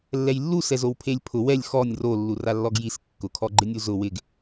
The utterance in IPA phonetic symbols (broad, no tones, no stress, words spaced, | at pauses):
lːɛjlːu sɛzowpʰelʲpʰʊ wɛlʲ xɔnʲ ro lːuralːɔɡjis kːʊkʰɔɡ͡ǃɪnʲu zʊ wɪɡ